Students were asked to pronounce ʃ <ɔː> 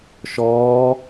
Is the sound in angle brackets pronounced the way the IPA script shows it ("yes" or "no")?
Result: yes